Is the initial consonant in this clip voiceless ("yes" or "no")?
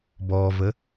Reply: no